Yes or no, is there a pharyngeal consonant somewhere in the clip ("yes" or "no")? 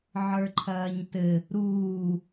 yes